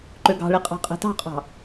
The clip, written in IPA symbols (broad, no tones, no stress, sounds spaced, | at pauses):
ǃ ø ɡ ɑ̤ ɭ i qʼ ɑ̤ qʼ e̤ t ɑ̤ qʼ ɑ̤